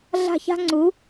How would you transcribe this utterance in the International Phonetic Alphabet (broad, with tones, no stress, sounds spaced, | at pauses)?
ɮ a̤˧˩ ç a̤˧ ŋ͡ǀ u˩˧